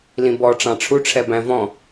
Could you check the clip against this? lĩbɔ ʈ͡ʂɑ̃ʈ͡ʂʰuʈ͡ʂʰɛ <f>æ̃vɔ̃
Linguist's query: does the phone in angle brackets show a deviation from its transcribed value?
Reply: yes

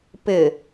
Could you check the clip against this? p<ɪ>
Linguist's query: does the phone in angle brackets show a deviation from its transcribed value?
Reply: no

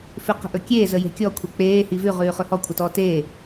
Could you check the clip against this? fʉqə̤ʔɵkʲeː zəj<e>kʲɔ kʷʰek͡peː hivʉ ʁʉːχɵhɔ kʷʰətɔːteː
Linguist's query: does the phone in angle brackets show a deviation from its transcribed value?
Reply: yes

